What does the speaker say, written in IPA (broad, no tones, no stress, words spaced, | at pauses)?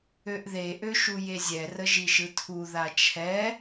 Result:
øʔðe ʔøʃujezʲɛ rəʒiʃɯtʰu ðat͡ʃʰɛ